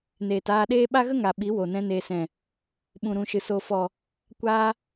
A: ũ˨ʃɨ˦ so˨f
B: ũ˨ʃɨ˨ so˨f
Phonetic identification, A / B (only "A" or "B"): B